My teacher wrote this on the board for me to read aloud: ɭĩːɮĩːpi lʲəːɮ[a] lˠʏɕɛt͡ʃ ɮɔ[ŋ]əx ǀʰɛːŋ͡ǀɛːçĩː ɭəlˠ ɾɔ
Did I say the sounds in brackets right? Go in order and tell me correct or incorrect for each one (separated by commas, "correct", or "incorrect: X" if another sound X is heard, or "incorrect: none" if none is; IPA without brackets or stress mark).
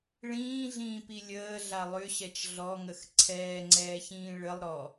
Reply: correct, correct